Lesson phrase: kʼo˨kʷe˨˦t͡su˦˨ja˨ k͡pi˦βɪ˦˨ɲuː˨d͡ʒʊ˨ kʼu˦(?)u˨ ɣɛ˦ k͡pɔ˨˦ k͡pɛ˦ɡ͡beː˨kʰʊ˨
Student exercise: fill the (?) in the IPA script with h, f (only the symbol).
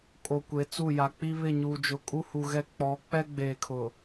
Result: h